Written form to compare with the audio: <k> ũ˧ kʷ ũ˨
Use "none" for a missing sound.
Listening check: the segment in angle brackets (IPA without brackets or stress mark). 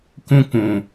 k